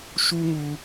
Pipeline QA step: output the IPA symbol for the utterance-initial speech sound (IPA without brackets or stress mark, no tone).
ʃ